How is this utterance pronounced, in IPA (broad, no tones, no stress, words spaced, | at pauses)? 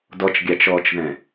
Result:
dɔt͡ʃɡʲɑt͡ʃɔːt͡ʃðɛ̃